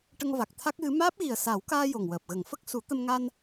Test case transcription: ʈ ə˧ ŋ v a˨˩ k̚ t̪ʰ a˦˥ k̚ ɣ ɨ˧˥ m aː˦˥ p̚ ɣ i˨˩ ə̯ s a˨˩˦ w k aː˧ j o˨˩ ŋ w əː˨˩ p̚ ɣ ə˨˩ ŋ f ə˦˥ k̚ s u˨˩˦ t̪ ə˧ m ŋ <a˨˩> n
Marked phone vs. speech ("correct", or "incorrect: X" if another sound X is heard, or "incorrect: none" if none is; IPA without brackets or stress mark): incorrect: a˧